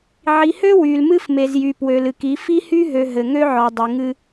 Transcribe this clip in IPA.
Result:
ʕ i˨ h ø˦ w y˨ l m ɨ˦ f m e˨ z j y˨ p w ø˨ l ɨ˨ k i˨˦ f i˦ h y˦ ɦ ø˨ ɦ ɘ˨ ŋ ø˦ ʕ ɔ˨ dˤ ɘ˨ ŋ ɨ˦

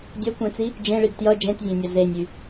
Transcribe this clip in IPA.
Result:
dʲ ɐ kʷ ẽ t͡s i | d͡ʒ ẽ ɭ i ɡ t j ʌ d͡ʒ ẽ t zʲ ẽ nʲ ɐ z e nʲ y

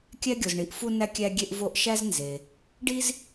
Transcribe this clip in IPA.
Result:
kʲ æ˦ ɡʲ o˨ z ɳ i˨ ʔ f u˦ n æ˦ kʲ æ˦ ɡʲ e˦ ʔ v o˦ ʔ ʃ æ˦ z n z e˨ | ɖ i˦ z

